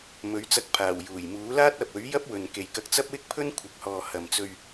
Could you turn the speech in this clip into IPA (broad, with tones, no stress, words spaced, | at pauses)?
mɵ˨˥ɥt͡sɐ˧k̚pʰaː˨˩w juː˨˩jmuː˨˥ laː˥t̚ɐ˨p̚ɵ˨˥ɥjɐ˥p̚ wɵ˨nke˨jkɐ˧k̚ t͡sɐ˥p̚wɪ˥k̚pʰɵ˥n kʷʰɪ˨k̚hɔː˨ hɐ˨mt͡sɵ˧ɥ